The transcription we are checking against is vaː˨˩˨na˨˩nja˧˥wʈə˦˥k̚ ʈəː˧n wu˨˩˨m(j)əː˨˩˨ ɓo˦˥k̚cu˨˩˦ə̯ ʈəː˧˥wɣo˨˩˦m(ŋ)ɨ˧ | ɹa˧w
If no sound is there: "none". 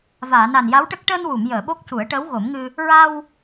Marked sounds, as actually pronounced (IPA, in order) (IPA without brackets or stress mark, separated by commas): j, ŋ